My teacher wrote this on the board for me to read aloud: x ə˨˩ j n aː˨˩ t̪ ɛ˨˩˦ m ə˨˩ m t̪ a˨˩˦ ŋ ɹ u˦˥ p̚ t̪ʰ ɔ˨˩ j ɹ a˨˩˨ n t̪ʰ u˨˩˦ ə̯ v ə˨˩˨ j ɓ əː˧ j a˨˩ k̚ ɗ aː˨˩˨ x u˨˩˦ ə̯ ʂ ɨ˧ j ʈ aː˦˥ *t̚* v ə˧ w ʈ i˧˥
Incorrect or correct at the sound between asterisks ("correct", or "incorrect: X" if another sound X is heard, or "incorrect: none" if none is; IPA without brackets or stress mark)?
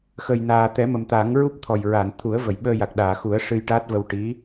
correct